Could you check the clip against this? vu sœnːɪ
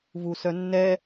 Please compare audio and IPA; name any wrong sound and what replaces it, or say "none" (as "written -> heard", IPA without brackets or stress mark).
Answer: ɪ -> ɛ